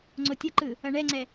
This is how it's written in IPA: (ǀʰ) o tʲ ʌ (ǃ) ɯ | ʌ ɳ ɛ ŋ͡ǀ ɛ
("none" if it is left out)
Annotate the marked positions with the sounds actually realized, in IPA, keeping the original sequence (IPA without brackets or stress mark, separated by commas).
ŋ͡ǀ, ǃ